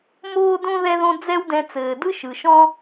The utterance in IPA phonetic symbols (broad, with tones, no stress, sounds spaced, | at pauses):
m oː˦ d õ˦ ð ɛ˦ ð õ˦ d͡z ɛ˦ w d ɛ̃˧ t͡s ɘː˨ d ɯ˦ ʃ ɯ˨ ʃ ɔ̃˦